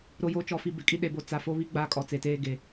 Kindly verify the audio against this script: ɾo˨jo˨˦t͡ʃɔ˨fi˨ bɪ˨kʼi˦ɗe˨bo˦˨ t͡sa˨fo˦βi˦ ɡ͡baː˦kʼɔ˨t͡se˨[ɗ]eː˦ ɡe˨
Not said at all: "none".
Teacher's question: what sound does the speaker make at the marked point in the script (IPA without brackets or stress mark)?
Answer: t